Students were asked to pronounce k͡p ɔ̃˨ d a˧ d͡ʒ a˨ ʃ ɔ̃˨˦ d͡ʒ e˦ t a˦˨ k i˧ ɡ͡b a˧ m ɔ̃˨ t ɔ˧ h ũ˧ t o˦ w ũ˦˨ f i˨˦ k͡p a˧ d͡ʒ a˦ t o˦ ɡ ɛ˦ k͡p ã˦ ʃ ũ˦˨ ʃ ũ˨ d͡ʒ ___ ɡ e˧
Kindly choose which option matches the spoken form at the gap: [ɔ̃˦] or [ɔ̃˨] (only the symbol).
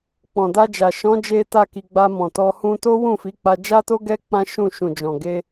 ɔ̃˨